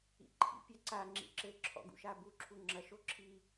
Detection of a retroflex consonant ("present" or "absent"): absent